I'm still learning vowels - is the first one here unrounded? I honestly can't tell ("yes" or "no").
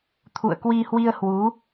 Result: no